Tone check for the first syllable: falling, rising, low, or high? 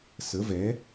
rising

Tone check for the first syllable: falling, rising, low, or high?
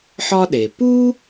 high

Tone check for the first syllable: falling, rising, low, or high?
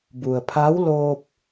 low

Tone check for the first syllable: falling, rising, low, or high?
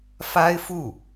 high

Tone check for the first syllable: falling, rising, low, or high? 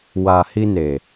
low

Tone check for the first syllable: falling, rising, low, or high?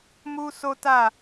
high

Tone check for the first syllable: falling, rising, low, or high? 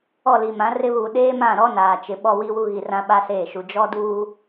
falling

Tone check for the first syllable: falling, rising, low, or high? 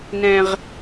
low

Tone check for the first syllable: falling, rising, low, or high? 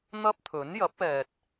high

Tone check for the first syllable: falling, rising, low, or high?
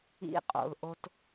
high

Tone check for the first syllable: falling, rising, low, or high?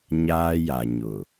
high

